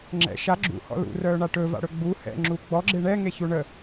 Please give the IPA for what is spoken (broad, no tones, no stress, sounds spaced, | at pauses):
ŋ͡ǁ ɛ̰ ʃ a ɡ͡ǁ ṵ h ɔ̰ l ṵ r œː ɳ a ʈ ɵ v a̰ ɽ ɵ ɡ͡b u h ɛ̰ ŋ͡ǁ u ɡ͡b ɔ ɡ͡ǁ e ɳ ɛ ŋ e ç u ɳ ə